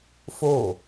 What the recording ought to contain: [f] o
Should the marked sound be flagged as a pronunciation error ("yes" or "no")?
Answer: no